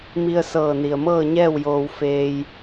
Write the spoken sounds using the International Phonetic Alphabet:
mi˧ə̯sɤː˧˩ni˩ə̯mɤː˥˨ ɲɛː˥˨wjoː˧w feː˧j

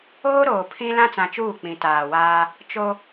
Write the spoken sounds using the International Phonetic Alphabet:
oː˦ɾoː˨ pʰĩ˦ lã˦t͡sã˨t͡ʃuː˦˨ k͡pĩ˨taː˨waː˦ | t͡ʃo˦

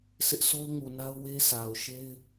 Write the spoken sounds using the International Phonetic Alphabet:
sɪ˦ʔso˦ʊ̯ŋu˨na˦ʊ̯ we˦sʰa˨ʊ̯ʃe˦ɪ̯

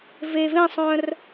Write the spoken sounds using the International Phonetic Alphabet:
ve vẽsˤœ̃r

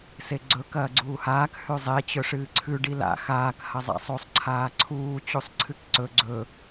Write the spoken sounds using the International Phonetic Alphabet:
seɡ͡ǀɵ kɐːɡ͡ǀuːhaːk hʉzˤe t͡ɕɵʂɨːǀʰʉ ɖila̰ xaːk hɐzˤa̰sˤosˤ ǀʰaːǀʰuː t͡ɕusˤǀʰɨkǀɵ ɡ͡ǀɵ

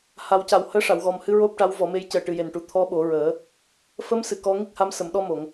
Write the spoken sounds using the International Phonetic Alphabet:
ha˨˩˦wca˨˩w həː˧˥ʂa˨˩˨wɣɔ˨˩mhɨ˧ ɹo˦˥p̚ʈa˧˥wvɔ˨˩˦me˧˥j cəː˨˩ʈɨ˨˩je˨˩nʈu˨˩ t̪ʰɔ˧˥ɓo˨˩˦ɹəː˨˩˦ | fə˧˥msɨ˨˩˨ kɔ˧˥ŋi˦˥k̚ha˧˥m sə˨˩˨mɗɔ˧mo˨˩˨ŋ

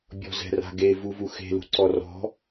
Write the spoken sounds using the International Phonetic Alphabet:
bʲɔ̤zɛ̤ra̤ɡe vuvuxe̤ lṳǀɔrɔ̤

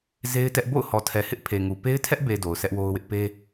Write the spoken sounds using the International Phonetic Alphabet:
ze˦ɪ̯tɛ˦ʔ bo̰˦˨ʊ̯hɔ˨tʰɛ˨hɪ˦ʔ pʰe˨ŋu˨ pe˦ɪ̯tʰɛ˦ʔbe˨ do˨ʊ̯sɛ˦ʔwo˦ʊ̯wɪ˦ʔ pe˦

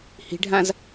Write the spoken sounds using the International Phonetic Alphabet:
hi̤ɖʱãz

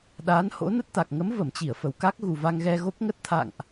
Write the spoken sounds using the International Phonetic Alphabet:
ɗaː˨˦nho̰˧˥ nə˦˥t̚t̪a˨˩k̚ ŋə˨˦mvə˧˩mt͡ɕi˧˩ə̯ fə˨˩wka˦˥k̚ ɣu˨˩va˧ŋɣɛ˧ɣo˦˥p̚ ŋə˦˥t̚t̪ʰa̰˧˨ŋʔ

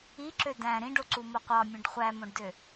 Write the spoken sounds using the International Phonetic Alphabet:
iǁø dæ̃ ɾĩɖoǀumo qʷɑmʲũɖ χʷæmõɖdø

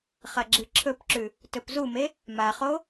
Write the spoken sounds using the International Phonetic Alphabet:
χɐɡ͡ǁɨǁʰɵpǁʉ | tɵpzume | maχo

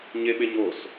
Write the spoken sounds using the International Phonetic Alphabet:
ɲeɓeɲos

